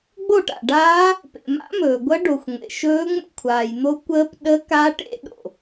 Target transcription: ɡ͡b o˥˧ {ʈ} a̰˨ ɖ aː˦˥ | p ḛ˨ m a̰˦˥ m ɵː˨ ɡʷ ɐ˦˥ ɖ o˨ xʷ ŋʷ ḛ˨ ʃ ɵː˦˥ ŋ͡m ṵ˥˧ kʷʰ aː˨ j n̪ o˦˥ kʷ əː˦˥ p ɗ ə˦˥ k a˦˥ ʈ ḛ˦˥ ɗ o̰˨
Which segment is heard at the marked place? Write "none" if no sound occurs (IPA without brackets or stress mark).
ʈ